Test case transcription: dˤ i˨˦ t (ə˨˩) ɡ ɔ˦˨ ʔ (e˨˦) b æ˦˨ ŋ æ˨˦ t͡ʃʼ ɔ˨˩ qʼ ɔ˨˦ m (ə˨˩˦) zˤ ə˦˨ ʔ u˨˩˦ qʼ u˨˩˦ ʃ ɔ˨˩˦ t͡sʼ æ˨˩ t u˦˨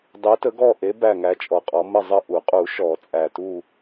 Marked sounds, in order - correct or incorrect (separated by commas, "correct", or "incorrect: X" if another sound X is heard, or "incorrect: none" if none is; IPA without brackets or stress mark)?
incorrect: ə˨˦, correct, incorrect: ə˦˨